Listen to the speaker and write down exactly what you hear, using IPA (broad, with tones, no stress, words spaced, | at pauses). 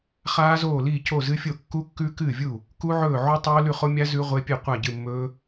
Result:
χaː˦˥zoː˥˩liː˥˩ co˥˩zɨ˦˥fʲo˥˩ kːu˦˥kːʉ˦˥ kɨː˥˩vʲu˥˩ | ku˦˥ʕɵː˥˩ ʕu˦˥tˤoː˦˥ lʉ˥˩χo˦˥mʲa˦˥ zʉ˦˥ʁʷe˦˥pʲe˥˩ qʷa˥˩ɟɨ˥˩mːɵː˦˥